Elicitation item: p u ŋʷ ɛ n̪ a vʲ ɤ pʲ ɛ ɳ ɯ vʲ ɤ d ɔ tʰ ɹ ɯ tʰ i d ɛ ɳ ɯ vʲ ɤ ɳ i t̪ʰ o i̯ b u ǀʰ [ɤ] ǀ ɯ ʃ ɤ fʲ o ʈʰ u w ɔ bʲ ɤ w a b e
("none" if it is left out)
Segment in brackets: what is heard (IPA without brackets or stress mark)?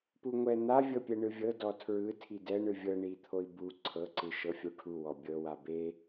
ɤ